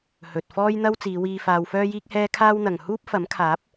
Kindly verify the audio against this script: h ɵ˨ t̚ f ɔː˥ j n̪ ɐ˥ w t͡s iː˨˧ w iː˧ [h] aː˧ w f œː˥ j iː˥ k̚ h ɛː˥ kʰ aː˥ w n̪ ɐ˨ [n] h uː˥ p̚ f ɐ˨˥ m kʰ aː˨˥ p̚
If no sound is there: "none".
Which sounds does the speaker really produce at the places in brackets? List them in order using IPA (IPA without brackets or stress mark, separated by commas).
f, ŋ